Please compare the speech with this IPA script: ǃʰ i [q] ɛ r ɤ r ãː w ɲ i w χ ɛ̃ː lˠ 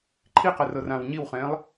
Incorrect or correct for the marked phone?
correct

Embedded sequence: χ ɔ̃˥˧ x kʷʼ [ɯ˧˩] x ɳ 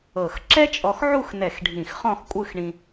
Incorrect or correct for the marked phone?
incorrect: ɯ˥˧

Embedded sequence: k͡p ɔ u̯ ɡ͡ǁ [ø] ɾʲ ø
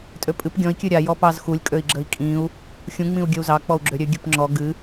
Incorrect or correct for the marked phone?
correct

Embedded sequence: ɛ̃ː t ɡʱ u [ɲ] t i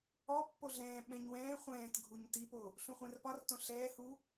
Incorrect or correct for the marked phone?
correct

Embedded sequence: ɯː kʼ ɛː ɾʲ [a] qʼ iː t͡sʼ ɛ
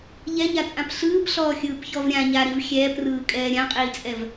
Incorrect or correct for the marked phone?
incorrect: ã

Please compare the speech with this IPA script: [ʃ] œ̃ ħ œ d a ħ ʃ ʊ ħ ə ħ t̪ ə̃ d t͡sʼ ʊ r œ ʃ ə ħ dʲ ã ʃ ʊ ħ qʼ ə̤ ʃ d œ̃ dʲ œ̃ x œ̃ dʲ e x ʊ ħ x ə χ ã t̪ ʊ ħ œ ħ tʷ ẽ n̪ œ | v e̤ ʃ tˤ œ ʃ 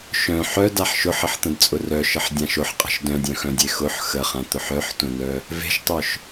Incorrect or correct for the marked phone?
correct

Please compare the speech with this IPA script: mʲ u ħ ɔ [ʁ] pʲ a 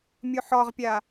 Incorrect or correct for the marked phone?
correct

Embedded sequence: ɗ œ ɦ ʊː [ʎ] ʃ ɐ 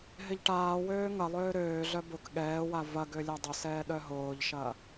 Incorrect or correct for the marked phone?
correct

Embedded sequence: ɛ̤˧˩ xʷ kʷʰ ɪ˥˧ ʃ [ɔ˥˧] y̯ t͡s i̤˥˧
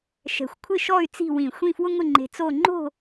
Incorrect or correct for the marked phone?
correct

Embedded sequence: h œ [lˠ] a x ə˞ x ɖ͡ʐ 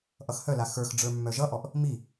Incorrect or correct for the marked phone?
incorrect: l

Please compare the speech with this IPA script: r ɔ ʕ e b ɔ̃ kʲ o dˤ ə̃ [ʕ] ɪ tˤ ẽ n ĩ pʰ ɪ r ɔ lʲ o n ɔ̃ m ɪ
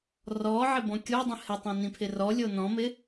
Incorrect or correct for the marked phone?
incorrect: h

